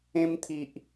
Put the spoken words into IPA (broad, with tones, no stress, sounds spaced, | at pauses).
ẽ˧ m t̪ʰ i˨ ʔ